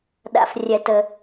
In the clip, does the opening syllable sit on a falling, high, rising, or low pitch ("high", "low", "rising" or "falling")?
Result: low